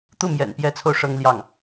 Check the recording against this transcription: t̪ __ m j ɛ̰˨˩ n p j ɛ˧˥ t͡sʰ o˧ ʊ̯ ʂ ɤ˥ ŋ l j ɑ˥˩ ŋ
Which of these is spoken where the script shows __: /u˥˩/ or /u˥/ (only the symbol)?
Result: u˥˩